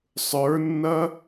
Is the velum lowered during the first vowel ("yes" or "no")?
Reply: no